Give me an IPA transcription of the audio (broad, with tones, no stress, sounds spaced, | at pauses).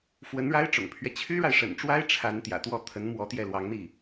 f w ə˧˥ n ɻ a˥ ɪ̯ ʈ͡ʂ ʊ̰˨˩ ŋ pʰ ɥ ɛ˦ t͡ɕʰ y˥ ɻ a˨ ɪ̯ ʂ ə̰˨˩ n ʈ͡ʂ w a˥ ɪ̯ ʈ͡ʂʰ a˧˥ n t̪ j ä̰˨˩ t̪ w ɔ˥˩ t̪ʰ ə˧˥ n m w ɔ˧˥ t̪ j ɛ˥˩ l w ɑ˧˥ ŋ n̪ i˥˩